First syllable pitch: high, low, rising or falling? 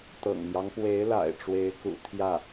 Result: low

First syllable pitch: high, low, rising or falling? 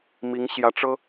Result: rising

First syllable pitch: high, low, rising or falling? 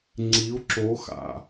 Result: rising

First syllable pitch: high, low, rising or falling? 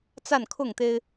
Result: falling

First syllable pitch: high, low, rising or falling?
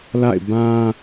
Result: falling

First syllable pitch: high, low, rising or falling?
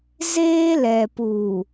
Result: high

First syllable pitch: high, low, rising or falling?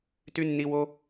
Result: high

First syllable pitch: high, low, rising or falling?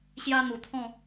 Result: high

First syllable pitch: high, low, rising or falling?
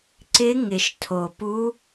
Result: rising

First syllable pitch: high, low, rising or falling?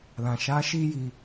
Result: low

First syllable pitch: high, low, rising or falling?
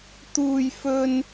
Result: high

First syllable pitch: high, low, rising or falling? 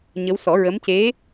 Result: rising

